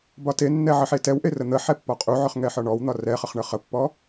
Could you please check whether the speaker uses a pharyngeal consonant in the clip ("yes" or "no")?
yes